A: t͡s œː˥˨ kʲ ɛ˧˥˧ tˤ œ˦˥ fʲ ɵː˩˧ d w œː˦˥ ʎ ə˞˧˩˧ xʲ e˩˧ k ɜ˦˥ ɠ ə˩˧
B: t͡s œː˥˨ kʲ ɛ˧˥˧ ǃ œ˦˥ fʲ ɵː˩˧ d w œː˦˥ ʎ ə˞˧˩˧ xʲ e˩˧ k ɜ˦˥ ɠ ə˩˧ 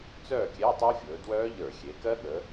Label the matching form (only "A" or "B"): A